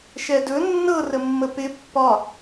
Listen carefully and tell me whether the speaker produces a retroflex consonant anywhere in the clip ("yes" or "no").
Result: no